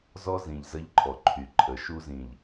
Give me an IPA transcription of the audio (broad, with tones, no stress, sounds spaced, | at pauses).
z ɔ˦ z ĩ˨ ʎ z ə˦ ʎ ǃʰ ɔ˨ ǃʰ y˨ ǃʰ ə˨˦ ʃ u˦ z ĩ˨ ʎ